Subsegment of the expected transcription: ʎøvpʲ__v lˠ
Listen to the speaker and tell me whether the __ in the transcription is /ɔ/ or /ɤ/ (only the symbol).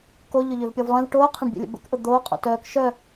ɔ